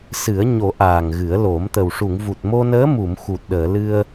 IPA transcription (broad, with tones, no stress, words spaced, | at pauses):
sɨ˨˩˦ə̯ɲo˨˩˦ ʔaː˨˩ŋɣɨ˨˩˦ə̯ lo˨˩˦mt̪ə˨˩w ʂu˨˩˨ŋvu˨˩t̚ mo˧nəː˧˥mu˨˩˨m xu˨˩t̚ ɗəː˨˩˨lɨ˧ə̯